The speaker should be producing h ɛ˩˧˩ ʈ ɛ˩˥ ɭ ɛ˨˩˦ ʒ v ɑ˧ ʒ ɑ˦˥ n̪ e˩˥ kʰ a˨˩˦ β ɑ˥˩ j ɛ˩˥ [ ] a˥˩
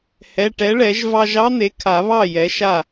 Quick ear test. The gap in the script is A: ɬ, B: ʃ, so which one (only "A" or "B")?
B